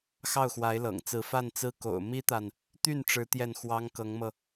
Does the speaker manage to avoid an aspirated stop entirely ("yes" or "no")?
yes